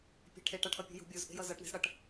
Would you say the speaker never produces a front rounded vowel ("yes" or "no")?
yes